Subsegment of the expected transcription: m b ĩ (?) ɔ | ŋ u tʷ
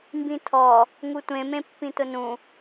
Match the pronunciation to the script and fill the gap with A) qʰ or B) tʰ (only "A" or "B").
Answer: B